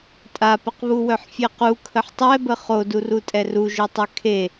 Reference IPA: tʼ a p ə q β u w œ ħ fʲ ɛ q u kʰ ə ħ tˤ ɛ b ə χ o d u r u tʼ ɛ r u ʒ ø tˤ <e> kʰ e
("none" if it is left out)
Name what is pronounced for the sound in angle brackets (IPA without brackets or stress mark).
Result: ø